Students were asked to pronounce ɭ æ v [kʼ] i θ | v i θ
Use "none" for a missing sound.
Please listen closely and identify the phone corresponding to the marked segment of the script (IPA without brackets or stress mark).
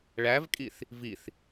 kʼ